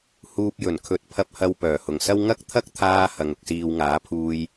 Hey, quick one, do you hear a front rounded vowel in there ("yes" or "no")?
yes